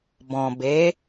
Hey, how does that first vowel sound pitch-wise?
low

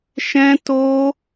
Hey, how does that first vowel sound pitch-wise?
high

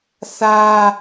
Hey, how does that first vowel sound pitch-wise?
high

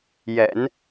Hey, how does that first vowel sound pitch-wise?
low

